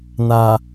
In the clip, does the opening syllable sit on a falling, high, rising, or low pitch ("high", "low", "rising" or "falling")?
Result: low